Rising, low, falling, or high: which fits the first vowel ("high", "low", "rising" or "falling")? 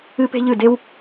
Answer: high